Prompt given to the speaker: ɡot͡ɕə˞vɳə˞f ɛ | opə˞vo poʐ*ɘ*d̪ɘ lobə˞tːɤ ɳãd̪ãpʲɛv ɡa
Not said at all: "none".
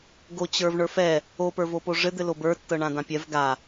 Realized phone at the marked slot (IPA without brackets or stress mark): ɘ